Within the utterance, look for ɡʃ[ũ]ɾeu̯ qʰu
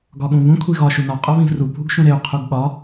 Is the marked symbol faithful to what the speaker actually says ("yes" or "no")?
yes